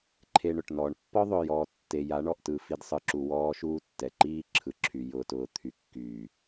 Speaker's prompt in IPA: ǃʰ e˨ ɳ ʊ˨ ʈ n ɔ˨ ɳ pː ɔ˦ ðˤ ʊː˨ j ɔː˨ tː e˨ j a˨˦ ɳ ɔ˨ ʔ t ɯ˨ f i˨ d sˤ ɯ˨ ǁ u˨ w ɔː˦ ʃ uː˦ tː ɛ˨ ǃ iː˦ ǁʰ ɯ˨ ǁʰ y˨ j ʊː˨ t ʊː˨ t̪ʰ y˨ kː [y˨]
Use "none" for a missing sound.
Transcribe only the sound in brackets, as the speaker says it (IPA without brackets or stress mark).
yː˨